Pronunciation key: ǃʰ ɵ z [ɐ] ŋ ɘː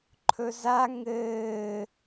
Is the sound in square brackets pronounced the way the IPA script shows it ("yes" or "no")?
no